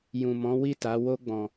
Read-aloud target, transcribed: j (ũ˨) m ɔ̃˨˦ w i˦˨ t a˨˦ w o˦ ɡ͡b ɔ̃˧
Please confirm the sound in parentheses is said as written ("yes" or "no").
yes